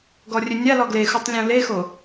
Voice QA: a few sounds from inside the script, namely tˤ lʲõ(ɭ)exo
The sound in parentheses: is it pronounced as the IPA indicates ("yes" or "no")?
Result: no